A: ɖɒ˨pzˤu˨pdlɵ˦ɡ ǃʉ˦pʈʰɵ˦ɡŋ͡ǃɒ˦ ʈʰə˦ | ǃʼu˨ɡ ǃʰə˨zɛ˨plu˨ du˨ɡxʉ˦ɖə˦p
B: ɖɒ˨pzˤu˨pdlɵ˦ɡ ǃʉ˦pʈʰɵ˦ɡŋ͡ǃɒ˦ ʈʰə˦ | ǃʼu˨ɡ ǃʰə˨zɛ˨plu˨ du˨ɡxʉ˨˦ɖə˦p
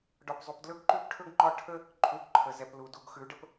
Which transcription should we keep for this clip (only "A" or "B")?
B